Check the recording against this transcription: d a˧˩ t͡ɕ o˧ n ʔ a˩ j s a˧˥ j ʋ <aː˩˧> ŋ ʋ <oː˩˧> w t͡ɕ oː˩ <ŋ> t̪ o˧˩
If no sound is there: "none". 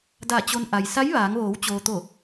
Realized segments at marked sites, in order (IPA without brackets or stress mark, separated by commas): aː˩˧, oː˩˧, none